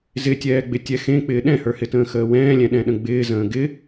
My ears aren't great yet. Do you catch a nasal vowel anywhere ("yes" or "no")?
yes